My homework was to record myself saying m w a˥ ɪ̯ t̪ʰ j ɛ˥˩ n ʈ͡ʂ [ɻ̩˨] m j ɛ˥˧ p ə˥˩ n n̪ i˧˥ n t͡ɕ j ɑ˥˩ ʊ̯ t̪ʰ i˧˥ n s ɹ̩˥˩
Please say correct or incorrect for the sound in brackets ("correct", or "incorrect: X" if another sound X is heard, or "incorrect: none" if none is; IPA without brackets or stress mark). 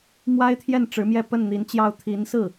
incorrect: ɻ̩˧˥